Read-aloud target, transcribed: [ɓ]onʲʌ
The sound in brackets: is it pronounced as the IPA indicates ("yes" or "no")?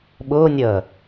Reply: yes